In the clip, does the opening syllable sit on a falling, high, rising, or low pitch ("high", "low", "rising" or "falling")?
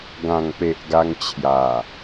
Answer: low